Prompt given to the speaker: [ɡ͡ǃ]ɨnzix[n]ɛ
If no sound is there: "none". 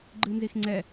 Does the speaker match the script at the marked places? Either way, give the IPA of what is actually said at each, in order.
ɡ͡ǃ, ŋ͡ǀ

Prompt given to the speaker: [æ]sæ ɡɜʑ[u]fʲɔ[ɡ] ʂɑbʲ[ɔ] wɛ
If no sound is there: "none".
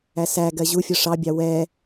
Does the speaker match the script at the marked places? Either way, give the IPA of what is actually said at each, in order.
æ, u, none, ɑ

